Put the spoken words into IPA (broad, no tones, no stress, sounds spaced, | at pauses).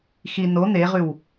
x i n o n̪ e ʁ ʉ w